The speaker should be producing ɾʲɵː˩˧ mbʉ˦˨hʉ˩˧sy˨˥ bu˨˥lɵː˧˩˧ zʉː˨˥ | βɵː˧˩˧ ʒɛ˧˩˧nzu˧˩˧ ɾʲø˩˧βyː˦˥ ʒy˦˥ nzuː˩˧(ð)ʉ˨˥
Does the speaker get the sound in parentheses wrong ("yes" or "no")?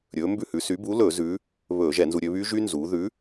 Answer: no